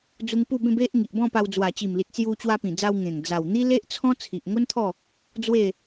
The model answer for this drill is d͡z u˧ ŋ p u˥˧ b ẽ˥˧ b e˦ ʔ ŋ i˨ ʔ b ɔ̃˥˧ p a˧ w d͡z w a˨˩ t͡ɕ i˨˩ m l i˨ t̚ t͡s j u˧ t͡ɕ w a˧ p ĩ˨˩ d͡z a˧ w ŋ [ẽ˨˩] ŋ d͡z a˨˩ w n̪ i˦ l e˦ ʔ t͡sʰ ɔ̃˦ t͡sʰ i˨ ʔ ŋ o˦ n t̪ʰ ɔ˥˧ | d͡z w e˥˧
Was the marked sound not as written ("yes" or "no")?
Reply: no